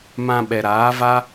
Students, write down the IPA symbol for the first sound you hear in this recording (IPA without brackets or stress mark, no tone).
m